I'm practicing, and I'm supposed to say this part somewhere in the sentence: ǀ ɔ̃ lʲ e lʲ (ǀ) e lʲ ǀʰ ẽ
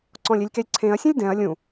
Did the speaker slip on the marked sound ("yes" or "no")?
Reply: yes